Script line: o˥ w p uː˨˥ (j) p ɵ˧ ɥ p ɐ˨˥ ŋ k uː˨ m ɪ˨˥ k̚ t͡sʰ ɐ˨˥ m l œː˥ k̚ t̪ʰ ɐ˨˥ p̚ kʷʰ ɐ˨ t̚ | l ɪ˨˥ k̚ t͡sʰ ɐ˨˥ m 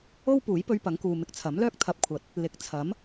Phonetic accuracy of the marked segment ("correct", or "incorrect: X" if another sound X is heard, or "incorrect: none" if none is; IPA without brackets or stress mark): correct